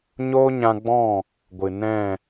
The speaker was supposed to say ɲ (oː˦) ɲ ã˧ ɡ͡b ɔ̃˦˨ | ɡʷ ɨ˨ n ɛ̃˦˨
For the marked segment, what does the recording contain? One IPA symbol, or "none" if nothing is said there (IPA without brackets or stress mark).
oː˦